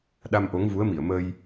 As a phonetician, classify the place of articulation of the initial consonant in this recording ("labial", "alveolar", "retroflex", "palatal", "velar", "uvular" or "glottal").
alveolar